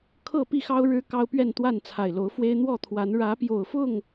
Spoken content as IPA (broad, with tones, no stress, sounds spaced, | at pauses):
kʰ ɤ˥˨ p i˥˨ x ɑ˦ ʊ̯ ɻ ɻ̩˦ k ɑ˦ ʊ̯ p ɥ ɛ˥˨ n t̪ w a˥˨ n t͡sʰ a˨˩ ɪ̯ l o˨˦ ʊ̯ f w e˦ ɪ̯ n̪ w ɔ˥˨ t̪ʰ w a˨˦ n ɻ ä˨˦ p j o˨˩ ʊ̯ f ʊ˥˨ ŋ